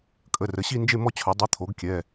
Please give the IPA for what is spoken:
kʼ ə˩˧˩ r ə˩˧ ɕ i˥˧ n d͡ʒ e˥˧ m ɔ˥˧ t͡ɕʰ œ˩˧ dˤ i˩˧˩ t̪ʰ o˩˧ ɡ kʲ ɛ˩˧˩

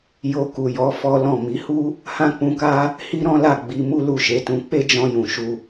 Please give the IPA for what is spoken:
j o˧ k u˨ j ɔ˨˦ f ɔ˦ l ɔ̃˦˨ m i˨˦ h u˦ | h ã˦ k͡p ũ˧ k a˦ | h i˦ ɾ ɔ̃˦ l a˦˨ ɡ͡b i˧ m u˦ l u˦˨ ʃ e˨˦ t ũ˧ k͡p e˦ d͡ʒ ɔ̃˧ j ũ˨ ʃ u˧

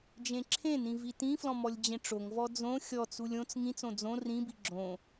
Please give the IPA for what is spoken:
d͡ʒ ẽ ǁʰ ẽ n ĩ v i t ĩ f l ɔ̃ m ɔ lʲ d͡ʑ ẽ ʈ͡ʂ o ŋ v ɔ d͡z õ xʲ ɔ t͡s u lʲ õ t͡s ŋ ĩ t͡s õ d͡z õ r ĩ b i ɡ͡ǁ õ

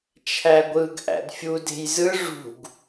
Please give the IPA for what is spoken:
t͡ʃʰ æ ɡʷ ɯ ɡ ʔ æ̰ d fʲ u d e̤ j z ɯ ʐ ṳ ɡ

